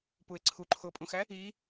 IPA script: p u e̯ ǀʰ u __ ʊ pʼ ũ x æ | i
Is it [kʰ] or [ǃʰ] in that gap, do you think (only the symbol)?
ǃʰ